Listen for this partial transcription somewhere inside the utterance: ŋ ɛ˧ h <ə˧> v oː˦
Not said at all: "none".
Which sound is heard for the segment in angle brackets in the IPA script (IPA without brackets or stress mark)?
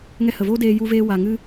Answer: ə˨